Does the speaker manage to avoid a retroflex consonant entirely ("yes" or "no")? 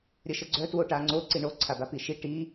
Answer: no